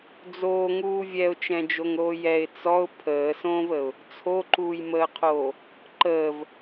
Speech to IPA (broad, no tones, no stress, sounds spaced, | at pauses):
d͡z oː ŋ uː vʲ ɛ ʊ̯ t͡ʃ ɛ̃ d͡ʒ o ŋ ɾ oː j ɛ ɪ̯ t͡s ɔ ʊ̯ pʰ əː s õː v ə ʊ̯ | t͡sʰ o ǃ uː j m əː qʰ oː | ǃ əː v